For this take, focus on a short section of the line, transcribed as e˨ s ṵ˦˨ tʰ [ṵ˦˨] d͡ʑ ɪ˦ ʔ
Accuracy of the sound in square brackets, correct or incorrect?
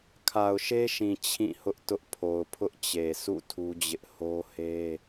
incorrect